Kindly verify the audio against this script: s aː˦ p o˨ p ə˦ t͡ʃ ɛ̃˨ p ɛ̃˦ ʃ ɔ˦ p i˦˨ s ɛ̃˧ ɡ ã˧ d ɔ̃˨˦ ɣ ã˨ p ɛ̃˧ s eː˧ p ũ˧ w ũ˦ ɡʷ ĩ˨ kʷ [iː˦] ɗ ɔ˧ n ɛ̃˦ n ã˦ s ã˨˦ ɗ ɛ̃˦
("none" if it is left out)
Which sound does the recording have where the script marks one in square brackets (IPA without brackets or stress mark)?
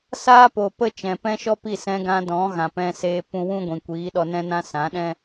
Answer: iː˨˦